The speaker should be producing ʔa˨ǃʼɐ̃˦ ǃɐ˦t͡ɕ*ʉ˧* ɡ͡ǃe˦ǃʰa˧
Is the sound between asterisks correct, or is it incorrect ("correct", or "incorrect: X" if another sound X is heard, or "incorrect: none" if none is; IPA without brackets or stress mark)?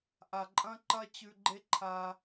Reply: correct